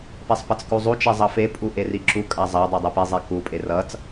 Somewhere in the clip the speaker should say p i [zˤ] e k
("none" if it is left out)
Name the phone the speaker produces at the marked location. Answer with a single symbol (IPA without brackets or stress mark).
zˤ